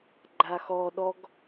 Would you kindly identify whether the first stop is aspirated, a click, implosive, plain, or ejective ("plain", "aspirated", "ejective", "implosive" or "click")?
click